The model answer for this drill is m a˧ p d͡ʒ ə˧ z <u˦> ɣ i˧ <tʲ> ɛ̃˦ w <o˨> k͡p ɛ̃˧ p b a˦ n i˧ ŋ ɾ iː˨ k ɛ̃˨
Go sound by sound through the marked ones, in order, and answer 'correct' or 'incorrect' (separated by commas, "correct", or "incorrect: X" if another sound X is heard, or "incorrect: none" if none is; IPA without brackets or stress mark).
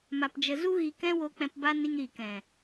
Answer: correct, incorrect: k, incorrect: o˧